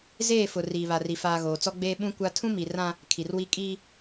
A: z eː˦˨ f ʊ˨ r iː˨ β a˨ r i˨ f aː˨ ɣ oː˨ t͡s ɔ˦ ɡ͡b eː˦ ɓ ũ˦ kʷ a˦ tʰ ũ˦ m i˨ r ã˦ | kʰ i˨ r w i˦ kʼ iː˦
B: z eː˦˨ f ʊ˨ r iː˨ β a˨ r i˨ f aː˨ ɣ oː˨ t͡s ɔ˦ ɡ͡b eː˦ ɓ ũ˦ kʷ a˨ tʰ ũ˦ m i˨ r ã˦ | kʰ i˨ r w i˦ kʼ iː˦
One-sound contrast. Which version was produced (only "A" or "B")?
A